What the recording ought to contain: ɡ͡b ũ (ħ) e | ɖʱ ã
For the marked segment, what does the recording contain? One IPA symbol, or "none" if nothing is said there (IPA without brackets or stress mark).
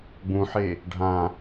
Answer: ħ